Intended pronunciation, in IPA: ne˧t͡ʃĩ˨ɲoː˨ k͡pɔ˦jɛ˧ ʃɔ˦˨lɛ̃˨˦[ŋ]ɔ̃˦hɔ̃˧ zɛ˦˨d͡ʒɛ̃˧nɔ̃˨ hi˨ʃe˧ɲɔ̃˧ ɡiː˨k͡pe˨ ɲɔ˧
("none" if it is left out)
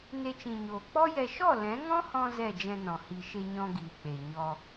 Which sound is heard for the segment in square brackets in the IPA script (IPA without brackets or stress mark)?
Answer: ŋ